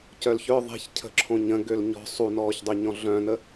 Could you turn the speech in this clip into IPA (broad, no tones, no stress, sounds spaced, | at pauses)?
c œ l ç œ ðˤ e̤ ç cʰ ə̤ ǁʰ õ ɲ ə̃ ɡ ø l ɲ ɔ̤ sˤ u n ɔː ç dˤ ø ɲ ɔ̃ ɮ œ̃ n ə